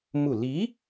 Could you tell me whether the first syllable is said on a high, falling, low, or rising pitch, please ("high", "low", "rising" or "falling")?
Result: falling